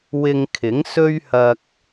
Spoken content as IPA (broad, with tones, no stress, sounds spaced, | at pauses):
w ɪ˧ ŋ kʰ ɪ˨˥ ŋ s ɵ˥ ɥ h ɐ˧ k̚